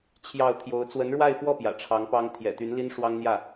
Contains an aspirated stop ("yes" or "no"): yes